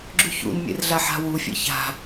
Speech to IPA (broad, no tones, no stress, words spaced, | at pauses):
ɡ͡ǁʉçṵnmʲḛr ɮaħa̤wufʲḛ ça̤